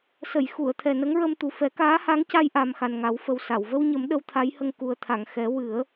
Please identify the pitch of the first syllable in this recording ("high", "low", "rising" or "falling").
low